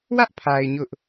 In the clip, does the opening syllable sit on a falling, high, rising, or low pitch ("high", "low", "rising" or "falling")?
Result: high